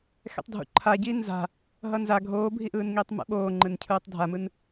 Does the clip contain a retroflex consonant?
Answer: no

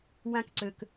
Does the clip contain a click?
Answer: yes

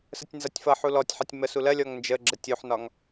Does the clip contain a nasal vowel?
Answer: no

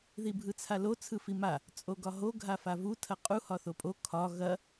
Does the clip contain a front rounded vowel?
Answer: no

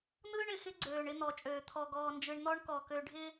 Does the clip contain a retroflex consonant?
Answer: yes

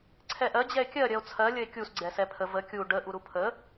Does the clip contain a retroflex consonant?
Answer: yes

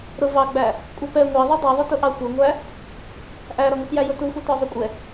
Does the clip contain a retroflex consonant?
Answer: no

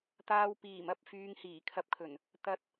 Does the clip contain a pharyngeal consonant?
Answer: no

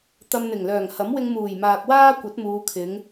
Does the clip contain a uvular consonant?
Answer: no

